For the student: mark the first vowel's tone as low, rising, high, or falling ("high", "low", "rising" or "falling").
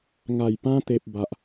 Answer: low